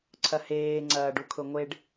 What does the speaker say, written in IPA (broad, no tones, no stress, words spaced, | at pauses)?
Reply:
ǀʰɐheː ŋ͡ǀɐːɖukʰʊŋʷeɖ